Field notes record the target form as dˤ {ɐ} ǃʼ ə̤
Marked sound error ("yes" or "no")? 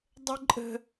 yes